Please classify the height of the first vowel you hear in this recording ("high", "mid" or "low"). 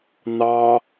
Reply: low